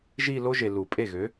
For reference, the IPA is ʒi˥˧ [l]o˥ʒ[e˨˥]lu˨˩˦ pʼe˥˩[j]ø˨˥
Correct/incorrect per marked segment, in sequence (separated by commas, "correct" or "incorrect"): correct, incorrect, incorrect